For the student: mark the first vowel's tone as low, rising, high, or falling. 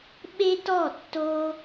high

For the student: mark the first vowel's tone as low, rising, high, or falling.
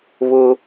high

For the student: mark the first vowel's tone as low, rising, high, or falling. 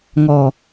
low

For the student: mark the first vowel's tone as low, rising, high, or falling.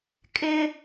high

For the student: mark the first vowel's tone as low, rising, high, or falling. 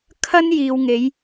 high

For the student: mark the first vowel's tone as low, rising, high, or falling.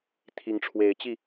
rising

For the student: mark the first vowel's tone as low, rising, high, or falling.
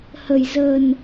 low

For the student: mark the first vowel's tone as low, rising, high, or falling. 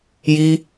high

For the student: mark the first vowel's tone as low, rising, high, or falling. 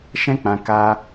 high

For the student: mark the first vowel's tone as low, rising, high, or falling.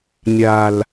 low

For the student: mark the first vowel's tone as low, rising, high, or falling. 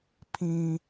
high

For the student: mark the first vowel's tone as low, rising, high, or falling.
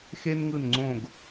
high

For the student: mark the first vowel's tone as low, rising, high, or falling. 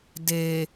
low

